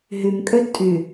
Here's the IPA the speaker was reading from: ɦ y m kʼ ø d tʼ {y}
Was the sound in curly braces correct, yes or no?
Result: yes